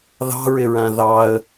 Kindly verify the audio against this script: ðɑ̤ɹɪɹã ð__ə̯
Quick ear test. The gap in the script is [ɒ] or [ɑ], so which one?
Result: ɑ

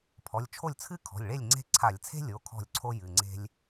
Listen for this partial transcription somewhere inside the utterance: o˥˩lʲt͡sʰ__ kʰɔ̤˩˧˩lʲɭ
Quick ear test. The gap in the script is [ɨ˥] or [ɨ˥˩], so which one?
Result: ɨ˥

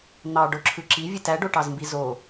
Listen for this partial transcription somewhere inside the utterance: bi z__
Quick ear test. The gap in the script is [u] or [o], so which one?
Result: o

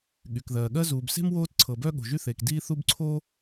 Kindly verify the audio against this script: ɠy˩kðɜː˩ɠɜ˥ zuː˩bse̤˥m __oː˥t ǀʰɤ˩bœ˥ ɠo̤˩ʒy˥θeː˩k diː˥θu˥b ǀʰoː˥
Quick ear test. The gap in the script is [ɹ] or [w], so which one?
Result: w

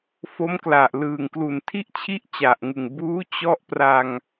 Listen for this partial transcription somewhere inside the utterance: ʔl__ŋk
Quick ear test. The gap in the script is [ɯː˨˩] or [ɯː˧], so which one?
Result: ɯː˨˩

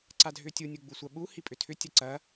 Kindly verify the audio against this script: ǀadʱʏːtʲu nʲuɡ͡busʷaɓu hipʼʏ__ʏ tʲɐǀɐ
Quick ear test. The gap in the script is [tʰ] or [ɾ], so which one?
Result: tʰ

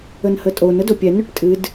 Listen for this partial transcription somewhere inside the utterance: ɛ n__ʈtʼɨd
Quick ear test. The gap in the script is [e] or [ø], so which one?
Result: ø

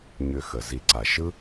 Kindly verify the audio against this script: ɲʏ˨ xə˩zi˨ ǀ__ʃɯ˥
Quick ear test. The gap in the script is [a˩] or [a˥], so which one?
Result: a˩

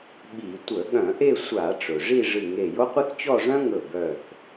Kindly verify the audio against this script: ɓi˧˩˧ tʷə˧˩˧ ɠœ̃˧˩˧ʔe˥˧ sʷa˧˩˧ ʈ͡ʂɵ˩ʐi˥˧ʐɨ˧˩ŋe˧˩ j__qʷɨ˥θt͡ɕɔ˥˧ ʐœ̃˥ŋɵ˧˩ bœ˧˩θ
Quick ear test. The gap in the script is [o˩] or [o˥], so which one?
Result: o˥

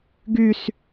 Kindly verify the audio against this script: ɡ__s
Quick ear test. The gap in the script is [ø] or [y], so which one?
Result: y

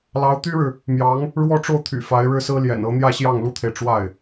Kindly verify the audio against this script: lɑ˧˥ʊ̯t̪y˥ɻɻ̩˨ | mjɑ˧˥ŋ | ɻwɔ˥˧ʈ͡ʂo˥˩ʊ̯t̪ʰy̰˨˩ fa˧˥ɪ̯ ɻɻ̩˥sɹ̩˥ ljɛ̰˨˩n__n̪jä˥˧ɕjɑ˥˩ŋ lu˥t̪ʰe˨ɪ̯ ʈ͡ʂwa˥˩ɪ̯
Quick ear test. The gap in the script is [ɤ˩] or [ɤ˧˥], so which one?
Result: ɤ˧˥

